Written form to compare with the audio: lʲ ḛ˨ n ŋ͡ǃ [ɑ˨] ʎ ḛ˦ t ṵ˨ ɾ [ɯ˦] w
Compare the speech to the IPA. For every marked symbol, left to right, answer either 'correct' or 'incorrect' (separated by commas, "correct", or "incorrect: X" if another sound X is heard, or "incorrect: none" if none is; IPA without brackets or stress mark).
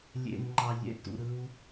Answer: correct, correct